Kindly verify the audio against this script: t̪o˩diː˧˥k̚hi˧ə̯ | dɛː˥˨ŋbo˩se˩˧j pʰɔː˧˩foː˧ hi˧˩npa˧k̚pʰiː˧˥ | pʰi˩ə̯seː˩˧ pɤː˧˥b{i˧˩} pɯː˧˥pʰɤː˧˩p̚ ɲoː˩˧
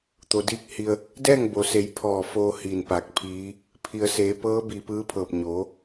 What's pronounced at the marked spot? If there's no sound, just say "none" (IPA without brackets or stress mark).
i˧˩